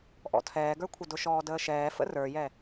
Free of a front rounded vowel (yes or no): yes